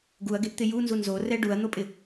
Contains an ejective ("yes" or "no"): yes